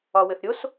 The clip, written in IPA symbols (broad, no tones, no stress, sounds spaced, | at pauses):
ɒ w ɘ θ ɾʲ o s